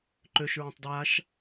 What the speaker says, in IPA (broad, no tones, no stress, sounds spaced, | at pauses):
ǃ ø ʃ ɹ ã tˤ d ɹ a ʃ